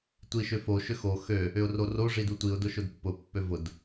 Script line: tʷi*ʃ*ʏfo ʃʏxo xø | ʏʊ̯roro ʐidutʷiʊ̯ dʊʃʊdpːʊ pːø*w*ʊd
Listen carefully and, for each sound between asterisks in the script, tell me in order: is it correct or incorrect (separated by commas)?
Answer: correct, incorrect